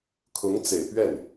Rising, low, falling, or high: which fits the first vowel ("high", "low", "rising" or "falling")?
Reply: rising